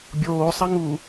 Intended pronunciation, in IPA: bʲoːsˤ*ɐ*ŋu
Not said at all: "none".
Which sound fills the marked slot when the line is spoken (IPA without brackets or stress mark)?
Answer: ɐ